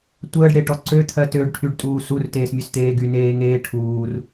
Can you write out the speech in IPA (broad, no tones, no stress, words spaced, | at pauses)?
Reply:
tʷəːɖɽeʈɔ ǀøt̪ʰɜ tøɖʈʰyɖtʼuː surteːsmʲøst̪eː ɡyneːŋeː ʈʰuːr